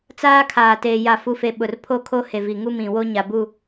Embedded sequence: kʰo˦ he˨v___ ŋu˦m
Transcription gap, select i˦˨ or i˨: i˨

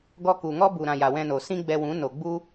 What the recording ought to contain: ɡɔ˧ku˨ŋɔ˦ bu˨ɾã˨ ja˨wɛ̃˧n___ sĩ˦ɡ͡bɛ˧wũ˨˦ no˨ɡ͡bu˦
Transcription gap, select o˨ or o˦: o˨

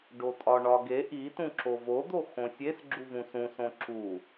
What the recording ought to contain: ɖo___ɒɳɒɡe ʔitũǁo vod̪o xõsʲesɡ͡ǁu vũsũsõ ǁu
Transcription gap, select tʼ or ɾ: tʼ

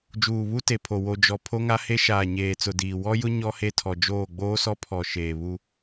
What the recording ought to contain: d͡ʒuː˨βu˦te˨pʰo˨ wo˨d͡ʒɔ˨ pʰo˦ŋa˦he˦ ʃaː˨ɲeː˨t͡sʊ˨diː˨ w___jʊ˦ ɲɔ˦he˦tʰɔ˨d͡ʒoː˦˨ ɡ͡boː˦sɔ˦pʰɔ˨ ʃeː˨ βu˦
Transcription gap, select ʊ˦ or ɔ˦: ɔ˦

